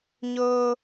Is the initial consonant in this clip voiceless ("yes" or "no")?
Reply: no